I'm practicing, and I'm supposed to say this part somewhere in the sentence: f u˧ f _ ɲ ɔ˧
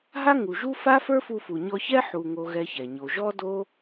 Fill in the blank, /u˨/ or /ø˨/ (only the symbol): u˨